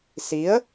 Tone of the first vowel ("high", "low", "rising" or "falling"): rising